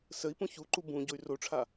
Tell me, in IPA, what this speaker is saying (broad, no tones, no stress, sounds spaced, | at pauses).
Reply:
s ə i̯ p ũ ç u ǃ u b ũ ɟ o y̯ r o ʈ͡ʂʰ a